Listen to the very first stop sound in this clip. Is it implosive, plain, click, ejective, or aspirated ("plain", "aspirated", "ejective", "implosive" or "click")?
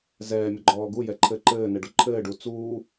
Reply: click